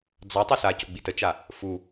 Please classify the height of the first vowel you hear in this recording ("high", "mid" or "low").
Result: low